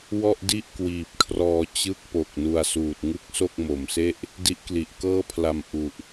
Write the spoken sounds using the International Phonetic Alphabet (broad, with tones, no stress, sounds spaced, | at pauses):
w ɔ˥˩ ʔ d i˥˩ ʔ k w iː˨˩ p̚ kʰ r ɔː˧ t͡ɕ ɯ˥˩ k̚ p o˨˩ k̚ n u˧ a̯ s uː˨˩ t̚ ŋ ɯ˥˩ k̚ s o˥˩ k̚ m o˨˩ m s e˥˩ ʔ | d i˦˥ ʔ k l i˨˩ ʔ k ɤː˥˩ pʰ l a˧ m ʔ u˨˩ ʔ